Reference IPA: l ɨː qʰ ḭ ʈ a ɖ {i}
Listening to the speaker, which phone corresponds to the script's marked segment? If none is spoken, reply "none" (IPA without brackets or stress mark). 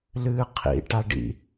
ḭ